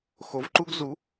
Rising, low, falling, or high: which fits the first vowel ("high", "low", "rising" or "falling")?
rising